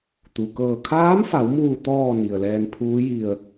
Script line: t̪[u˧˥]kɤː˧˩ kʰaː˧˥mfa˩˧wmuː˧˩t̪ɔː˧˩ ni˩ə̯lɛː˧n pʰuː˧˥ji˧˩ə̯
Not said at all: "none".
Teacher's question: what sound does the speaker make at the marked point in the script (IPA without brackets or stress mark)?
u˩